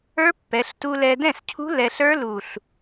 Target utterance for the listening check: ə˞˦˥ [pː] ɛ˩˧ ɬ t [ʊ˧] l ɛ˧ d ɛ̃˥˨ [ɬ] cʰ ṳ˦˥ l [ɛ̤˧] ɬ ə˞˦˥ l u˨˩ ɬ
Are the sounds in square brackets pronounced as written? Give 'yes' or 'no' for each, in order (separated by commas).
yes, no, no, no